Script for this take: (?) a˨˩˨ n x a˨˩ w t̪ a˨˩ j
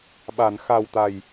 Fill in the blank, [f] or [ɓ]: ɓ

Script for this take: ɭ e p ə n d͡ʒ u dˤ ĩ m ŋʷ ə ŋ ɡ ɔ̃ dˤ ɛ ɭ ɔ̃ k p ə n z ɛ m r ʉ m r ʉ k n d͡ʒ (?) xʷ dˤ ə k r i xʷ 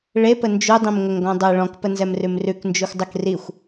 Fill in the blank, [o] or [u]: u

